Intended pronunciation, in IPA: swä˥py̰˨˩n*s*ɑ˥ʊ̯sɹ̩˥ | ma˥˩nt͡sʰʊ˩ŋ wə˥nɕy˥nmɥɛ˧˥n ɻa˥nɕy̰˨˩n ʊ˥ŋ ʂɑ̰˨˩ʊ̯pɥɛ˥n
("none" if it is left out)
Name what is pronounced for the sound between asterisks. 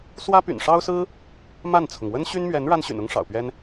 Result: ʂ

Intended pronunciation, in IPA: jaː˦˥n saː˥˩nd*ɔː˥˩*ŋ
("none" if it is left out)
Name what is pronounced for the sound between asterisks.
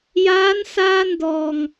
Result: ɔː˧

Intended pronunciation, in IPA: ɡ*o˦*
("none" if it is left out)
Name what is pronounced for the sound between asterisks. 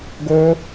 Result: o˦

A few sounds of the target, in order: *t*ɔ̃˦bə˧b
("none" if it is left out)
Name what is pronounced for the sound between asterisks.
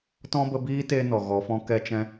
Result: t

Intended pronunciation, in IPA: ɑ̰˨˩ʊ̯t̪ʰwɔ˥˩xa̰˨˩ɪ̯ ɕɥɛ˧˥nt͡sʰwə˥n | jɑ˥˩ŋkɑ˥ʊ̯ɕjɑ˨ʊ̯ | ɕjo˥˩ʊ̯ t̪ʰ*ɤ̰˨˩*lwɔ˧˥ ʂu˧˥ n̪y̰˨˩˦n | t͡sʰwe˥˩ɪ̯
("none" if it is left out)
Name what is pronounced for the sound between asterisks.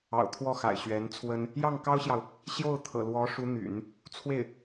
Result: ɤ̰˨˩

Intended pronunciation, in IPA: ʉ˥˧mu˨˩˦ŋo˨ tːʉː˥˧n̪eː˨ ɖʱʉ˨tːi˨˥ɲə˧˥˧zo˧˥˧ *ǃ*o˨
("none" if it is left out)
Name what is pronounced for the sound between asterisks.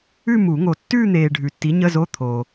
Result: t̪ʰ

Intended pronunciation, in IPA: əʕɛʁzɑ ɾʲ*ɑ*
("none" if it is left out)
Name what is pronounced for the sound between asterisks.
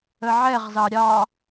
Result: ɑ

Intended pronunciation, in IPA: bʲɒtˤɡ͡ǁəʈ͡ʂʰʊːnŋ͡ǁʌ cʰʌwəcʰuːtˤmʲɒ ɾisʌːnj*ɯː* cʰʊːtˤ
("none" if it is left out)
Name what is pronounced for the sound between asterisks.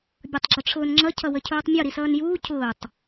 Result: uː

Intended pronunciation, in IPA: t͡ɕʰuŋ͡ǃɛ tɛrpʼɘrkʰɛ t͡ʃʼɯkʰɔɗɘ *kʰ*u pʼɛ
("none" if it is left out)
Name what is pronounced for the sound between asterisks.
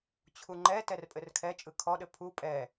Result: pʰ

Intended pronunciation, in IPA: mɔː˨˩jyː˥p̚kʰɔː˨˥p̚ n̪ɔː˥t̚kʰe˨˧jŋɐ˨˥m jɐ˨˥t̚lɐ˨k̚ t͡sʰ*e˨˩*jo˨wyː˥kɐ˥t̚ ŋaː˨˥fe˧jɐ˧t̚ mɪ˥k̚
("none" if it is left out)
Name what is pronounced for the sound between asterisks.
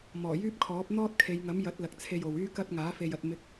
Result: e˧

